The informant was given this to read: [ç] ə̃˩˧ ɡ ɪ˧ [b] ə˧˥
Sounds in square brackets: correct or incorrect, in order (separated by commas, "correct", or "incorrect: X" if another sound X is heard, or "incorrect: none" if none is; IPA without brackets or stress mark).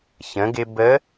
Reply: correct, correct